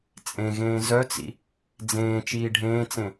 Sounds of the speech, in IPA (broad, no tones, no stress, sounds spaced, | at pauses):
t͡sʼ ẽ ɣ ẽː z œ t͡s ḭ | d͡z ẽː t͡ʃ iː ɖʱ ẽː t͡s ẽ